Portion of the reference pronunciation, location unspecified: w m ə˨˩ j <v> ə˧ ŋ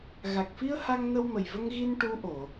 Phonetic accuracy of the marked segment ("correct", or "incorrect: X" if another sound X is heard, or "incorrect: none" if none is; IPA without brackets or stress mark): correct